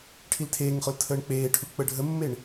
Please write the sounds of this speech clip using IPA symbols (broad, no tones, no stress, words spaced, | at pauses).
ʈʰiltʰeːŋχol tʰəːɳk͡peːʈʰu k͡pəɖʱəmːeɳ